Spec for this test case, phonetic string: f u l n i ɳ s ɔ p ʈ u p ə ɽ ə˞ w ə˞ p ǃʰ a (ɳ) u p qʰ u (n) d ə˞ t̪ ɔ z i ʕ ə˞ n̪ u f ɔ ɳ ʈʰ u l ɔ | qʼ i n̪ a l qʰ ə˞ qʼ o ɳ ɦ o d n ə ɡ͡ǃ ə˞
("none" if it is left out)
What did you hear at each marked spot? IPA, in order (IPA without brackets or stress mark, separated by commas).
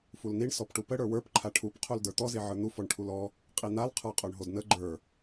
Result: ʈʰ, l